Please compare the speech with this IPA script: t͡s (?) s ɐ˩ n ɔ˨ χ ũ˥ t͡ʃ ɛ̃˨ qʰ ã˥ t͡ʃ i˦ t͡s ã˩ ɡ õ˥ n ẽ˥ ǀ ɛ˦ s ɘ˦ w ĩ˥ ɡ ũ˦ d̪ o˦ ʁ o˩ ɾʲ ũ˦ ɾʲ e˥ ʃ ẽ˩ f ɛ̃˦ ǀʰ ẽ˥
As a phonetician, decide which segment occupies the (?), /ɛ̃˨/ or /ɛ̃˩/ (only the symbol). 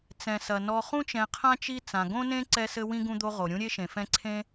ɛ̃˩